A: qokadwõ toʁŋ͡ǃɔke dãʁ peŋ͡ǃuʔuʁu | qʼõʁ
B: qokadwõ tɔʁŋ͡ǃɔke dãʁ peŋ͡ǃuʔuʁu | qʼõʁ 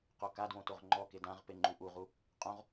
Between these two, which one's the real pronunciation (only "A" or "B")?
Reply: A